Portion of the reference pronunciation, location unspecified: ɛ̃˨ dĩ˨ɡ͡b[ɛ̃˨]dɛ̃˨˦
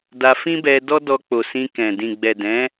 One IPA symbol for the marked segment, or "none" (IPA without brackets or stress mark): ɛ˨